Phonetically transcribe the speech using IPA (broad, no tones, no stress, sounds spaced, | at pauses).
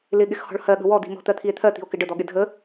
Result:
l ɪ ɠ ɪ x h ɔ̤ ɭ h ɜ ɠ ə̤ w ɔ d̪ i̤ m ɔ̤ t̪ ɜ t̪ʰ i e̯ t̪ʰ ɜ t̪ i̤ o̯ k ɪ ɖ ə d̪ ɔ ɠ ɪ dʱ ə